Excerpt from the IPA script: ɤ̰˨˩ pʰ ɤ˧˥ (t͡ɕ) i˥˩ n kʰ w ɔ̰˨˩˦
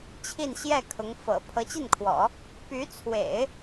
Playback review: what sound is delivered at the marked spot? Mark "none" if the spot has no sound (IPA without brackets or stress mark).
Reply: t͡ɕ